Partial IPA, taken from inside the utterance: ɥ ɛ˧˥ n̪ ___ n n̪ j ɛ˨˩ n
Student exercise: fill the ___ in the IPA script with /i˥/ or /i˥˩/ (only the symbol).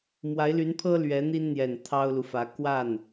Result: i˥